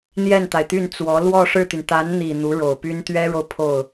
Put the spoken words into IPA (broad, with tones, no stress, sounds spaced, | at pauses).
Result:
n̪ j ɛ˥˩ n t̪ a˩ ɪ̯ t̪ y˥˩ n t͡s w ɔ˧˥ l w ɔ˥˧ ʂ ɻ̩˥˩ t̪ y˩ n t̪ a˧˥ n n̪ i˨˩ n̪ u˧˥ ɻ o˨˩ ʊ̯ p y˥ n t̪ ɥ ɛ˥ ɻ o˨ ʊ̯ pʰ o˥˩ ʊ̯